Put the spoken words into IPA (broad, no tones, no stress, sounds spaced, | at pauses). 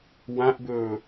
w ã ʔ b ɵː